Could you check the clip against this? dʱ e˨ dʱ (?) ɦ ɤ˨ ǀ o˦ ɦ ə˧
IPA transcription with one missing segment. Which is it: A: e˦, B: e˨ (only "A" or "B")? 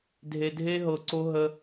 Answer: A